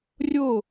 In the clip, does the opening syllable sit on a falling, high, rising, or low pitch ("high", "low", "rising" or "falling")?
falling